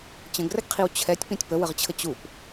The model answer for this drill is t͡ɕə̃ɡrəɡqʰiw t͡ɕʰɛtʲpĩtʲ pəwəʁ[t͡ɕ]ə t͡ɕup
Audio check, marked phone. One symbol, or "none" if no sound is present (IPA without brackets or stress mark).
t͡ɕʰ